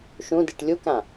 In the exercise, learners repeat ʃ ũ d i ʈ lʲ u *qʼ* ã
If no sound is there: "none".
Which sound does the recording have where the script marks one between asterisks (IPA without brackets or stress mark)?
k